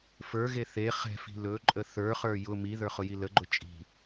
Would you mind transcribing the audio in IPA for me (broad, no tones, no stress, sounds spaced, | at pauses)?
f ə˞ ɣ e θ e χ ɛ̤ f i̤ l ɵ ǃʼ ə θ ə˞ χ ə˞ j ʊ m i ð ə˞ χ ʊ j i l ə ɡ͡ǃ ʊ t͡ʃʼ i̤